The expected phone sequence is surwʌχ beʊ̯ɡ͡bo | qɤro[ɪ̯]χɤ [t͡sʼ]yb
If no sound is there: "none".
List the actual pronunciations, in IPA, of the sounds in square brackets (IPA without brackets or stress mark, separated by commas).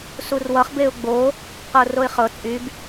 ɪ̯, t͡sʼ